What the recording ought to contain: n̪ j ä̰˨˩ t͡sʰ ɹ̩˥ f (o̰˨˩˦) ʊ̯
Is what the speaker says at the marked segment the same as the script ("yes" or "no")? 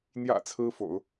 yes